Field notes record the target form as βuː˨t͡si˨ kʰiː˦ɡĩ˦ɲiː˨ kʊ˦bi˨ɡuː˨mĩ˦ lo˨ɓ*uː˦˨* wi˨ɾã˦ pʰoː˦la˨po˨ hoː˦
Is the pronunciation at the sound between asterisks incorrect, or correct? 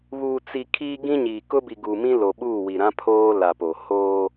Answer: correct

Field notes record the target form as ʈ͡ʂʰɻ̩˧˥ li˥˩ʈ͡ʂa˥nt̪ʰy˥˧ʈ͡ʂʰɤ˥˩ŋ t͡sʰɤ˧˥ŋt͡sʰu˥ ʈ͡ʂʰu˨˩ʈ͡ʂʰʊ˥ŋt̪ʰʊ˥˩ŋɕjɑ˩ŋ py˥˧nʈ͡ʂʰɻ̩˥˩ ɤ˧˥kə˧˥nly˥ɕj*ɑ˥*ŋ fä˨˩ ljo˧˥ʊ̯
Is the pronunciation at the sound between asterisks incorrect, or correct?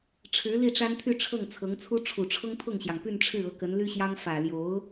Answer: correct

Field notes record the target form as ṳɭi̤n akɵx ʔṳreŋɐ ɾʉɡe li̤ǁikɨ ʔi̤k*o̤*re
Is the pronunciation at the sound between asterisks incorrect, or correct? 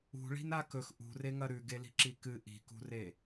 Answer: incorrect: ṳ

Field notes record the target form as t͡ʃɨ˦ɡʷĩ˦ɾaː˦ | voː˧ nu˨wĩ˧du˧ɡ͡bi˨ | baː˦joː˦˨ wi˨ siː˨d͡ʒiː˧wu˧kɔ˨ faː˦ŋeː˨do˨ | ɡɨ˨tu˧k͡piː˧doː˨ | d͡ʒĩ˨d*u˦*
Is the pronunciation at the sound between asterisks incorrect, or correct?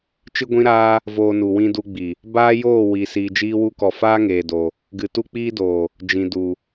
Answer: incorrect: u˨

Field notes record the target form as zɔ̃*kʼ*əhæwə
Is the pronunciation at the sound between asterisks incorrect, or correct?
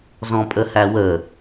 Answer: incorrect: pʼ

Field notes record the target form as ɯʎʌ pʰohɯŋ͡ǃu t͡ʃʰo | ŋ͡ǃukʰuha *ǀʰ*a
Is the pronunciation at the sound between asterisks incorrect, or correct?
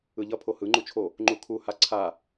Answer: correct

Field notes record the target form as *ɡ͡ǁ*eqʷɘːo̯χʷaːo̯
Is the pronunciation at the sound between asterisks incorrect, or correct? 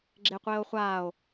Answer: correct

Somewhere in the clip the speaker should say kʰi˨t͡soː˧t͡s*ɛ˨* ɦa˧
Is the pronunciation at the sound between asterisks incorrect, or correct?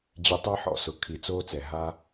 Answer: correct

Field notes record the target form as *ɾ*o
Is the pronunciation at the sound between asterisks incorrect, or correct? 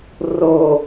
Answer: incorrect: r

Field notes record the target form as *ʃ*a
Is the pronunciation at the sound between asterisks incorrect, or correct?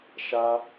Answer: correct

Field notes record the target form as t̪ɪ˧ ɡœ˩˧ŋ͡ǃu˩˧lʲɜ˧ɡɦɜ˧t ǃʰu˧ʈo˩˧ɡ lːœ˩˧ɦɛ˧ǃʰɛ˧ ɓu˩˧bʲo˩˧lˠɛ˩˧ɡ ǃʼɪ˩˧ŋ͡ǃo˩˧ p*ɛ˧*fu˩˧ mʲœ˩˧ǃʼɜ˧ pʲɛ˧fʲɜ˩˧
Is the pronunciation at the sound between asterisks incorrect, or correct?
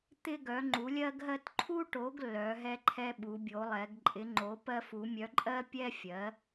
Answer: incorrect: ɜ˧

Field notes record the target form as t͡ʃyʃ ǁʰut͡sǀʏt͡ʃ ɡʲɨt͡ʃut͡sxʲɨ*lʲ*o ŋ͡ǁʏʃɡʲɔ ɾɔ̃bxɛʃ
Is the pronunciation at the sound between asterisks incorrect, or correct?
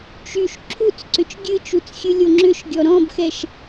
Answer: correct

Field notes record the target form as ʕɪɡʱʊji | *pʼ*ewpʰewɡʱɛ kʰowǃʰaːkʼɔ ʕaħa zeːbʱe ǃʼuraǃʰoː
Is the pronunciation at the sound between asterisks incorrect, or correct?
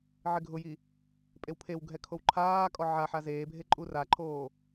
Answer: correct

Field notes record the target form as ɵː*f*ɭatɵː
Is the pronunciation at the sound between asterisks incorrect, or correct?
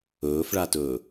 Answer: correct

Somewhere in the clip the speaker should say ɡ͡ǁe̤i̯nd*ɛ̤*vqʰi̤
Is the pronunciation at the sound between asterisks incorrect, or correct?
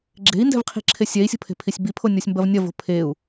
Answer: correct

